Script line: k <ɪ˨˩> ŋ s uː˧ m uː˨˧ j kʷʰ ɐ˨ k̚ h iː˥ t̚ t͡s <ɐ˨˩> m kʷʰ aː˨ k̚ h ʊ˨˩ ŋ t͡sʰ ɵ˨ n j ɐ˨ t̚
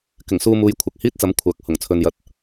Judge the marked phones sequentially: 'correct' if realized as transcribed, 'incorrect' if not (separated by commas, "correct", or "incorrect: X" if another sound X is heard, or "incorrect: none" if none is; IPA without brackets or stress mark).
correct, incorrect: ɐ˨˥